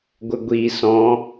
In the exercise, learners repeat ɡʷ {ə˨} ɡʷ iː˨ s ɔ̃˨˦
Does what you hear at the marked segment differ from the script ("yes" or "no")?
no